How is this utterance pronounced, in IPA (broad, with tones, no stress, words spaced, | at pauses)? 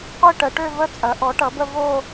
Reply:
qʷi˥˧ʈə˩˥ʈø˥˧və˥˧ t͡sʼɐ˩˥ʔɔ˩˥ʈʌ˩˥bə˥˧ vo˥˧